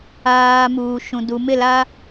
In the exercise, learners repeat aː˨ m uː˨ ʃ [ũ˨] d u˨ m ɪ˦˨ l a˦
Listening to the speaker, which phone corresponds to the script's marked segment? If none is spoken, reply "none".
ũ˨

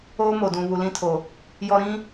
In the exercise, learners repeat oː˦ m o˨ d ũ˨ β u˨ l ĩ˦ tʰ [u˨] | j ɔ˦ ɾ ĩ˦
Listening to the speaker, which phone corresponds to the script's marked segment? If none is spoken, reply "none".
o˨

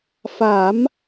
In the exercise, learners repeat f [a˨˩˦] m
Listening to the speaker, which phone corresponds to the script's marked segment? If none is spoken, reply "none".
a˨˩˦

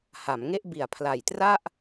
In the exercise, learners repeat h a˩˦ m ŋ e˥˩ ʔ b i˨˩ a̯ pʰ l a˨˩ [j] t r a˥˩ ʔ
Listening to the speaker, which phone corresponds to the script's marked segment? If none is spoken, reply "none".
j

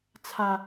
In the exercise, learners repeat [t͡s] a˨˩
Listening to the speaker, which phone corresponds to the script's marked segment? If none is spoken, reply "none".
t͡sʰ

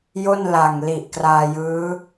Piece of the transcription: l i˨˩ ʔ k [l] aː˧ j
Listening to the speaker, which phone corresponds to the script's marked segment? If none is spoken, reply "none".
r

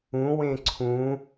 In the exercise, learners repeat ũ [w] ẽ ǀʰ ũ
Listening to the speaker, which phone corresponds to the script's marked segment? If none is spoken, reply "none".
w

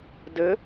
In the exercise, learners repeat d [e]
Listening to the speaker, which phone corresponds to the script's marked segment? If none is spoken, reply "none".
ɘ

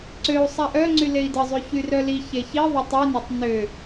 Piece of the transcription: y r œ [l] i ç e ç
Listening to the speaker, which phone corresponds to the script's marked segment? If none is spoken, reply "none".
l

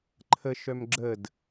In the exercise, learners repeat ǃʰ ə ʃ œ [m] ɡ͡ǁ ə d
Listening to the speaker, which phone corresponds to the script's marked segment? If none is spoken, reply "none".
m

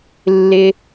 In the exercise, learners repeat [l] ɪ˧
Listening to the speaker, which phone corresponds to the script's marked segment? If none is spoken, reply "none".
lː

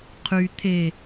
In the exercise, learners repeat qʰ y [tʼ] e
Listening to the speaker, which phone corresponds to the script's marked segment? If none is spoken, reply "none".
t̪ʰ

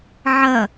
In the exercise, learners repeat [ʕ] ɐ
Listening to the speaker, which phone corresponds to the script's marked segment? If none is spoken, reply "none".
ʕ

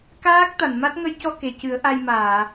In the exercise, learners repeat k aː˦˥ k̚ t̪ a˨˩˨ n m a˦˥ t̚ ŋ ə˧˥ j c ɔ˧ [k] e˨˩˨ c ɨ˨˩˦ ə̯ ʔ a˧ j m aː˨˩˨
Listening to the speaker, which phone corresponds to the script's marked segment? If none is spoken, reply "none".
k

